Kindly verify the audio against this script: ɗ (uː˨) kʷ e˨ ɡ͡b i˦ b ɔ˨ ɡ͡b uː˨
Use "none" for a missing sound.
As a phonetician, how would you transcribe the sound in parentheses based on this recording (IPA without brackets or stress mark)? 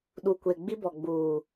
uː˨